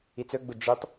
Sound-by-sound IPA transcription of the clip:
i t͡s ɵ ɡ͡b u d͡ʒ i tˤ

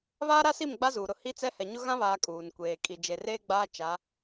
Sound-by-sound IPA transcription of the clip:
β aː˦ ɾ a˦ s i˦˨ m ɡ͡b a˦ z uː˨ ɾ ʊ˦˨ h i˦ t͡s ɛ˦ h ɛ˨ ɲ ʊ˦ ɣ ã˦ β aː˨ kʼ uː˨ n kʷ eː˨ kʼ i˨ d͡ʒ e˨ r eː˦ ɡ͡b aː˦ t͡ʃ a˨˦

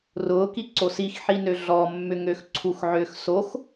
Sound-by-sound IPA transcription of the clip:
r ʊː k i ǀ o s i x ħ i n ø ɮ ɔ mː ʏ ŋ ø x ǀʰ u x ʕ ʏː x s o x

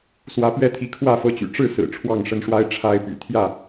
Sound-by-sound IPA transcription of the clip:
s w ä˨˦ p ɥ ɛ˦ t̪ʰ i˨˦ kʰ w ä˥˨ f ɤ˦ t͡ɕ y̰˨˩ ʈ͡ʂ ɻ̩˥˨ s ɹ̩˨˩ ʈ͡ʂʰ w ɑ˥˨ ŋ ʂ ə˦ n ʂ w a˦ ɪ̯ ʈ͡ʂʰ a˦ ɪ̯ p y̰˨˩ t̪ʰ j ä˥˨

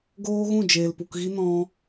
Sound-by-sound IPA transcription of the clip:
ɡ oː˦ ɣ ũ˦˨ d͡ʒ eː˨ l p u˨ k ɣ i˦ n ɔ̃˦

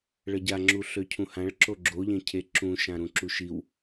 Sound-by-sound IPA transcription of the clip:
ɭ ə ɟ a ŋ͡ǁ u ɬ ø cʰ ũ h ã ɭ ǁ o ɡ͡ǁ o ʎ ẽ cʰ e ǁ ũ ʃ ã ɾ ũ ǁ u ʃ i w

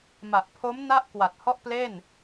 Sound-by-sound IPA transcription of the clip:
m a˨˩ ʔ pʰ o˦˥ m n a˥˩ ʔ k w a˨˩ t̚ h ɔ˥˩ ʔ p l e˥˩ n

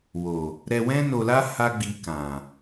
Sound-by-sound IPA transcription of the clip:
w o˨ | ɾ ɛ˧ w ɛ̃˦ n o˧ l a˦ h a˦ ɡ͡b i˧ k ã˨

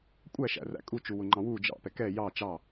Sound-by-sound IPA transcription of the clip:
kʷʼ æ ʃ æ̰ r æ̰ kʼ u t͡ʃ u w ʊ ŋ͡ǃ ɑ̃ w u d͡ʒ ɑ̰ p ɛ k ɛ j ɑ t͡ʃ ɑ

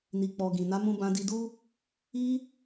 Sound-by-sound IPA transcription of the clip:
n i˨ k͡p ɔ˨ ɡ ĩ˨ n a˨˦ m ũ˧ b ã˧ d i˧ d u˦ | i˦

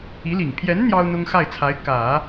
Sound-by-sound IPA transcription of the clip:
i˧˥ l i˨˩ ŋ pʰ j ɛ˧˥ n n̪ j ɑ˥ ʊ̯ n̪ ʊ˥ ŋ x a˥˩ ɪ̯ t͡sʰ a˧˥ ɪ̯ k ä˨˩˦

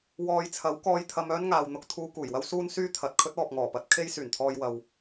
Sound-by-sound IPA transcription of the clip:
w ɔː˨ j t͡sʰ ɐ˨˥ w k ɔː˧ j t̪ʰ ɐ˧ m œː˥ n ŋ aː˨ w n̪ ʊ˧ k̚ t̪ʰ uː˧ k uː˨˩ j w ɐ˥ w s uː˥ n s yː˥ t̪ʰ ɐ˨ t̚ kʰ ɵ˥ t̚ ɔː˨ p̚ ŋ ɔː˨˩ p ɐ˧ t̚ kʰ e˥ j s yː˨˩ n t̪ʰ ɔː˧ j w ɐ˧ w

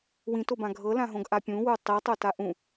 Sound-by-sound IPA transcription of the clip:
w ĩ t o b ã ɡʱ ɤ l ã ɦ õ ɡ ʔ a pʲ ũ w u tˤ i tˤ o t a ʔ ũ

